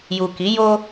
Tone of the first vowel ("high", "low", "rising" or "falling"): low